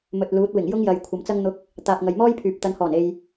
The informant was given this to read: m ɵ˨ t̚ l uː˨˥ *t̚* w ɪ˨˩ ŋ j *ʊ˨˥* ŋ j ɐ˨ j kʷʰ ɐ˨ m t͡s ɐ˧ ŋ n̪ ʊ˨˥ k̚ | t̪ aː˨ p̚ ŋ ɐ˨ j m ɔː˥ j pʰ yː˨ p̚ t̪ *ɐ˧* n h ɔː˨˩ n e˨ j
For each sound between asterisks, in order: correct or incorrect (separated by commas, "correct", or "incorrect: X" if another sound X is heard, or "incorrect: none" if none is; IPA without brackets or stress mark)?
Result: correct, incorrect: ʊ˥, incorrect: ɐ˨˧